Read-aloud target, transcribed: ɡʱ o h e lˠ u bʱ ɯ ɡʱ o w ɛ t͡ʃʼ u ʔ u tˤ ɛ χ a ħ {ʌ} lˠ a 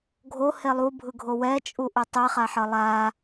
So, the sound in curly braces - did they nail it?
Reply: yes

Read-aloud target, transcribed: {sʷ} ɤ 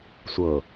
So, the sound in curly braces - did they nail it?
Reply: yes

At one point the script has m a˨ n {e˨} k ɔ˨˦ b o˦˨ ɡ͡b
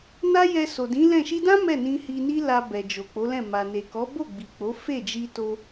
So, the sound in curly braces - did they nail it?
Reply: yes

